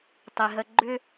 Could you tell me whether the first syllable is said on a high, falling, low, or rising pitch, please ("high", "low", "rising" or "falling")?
low